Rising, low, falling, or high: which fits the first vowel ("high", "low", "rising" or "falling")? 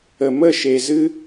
low